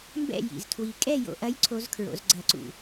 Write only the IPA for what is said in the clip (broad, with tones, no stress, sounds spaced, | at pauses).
m b ɛ̰˥˨ j ḭ˧˩ z tʰ w i˧ kʼ ɛ˥˨ j o̰˧ ʔ ɐ˧˥ j ǀʰ o˧˥ z kʰ ɹ o̰˩˧ z ɡ͡ǀ ɐ˧˩˧ ǀ ṵ˧˩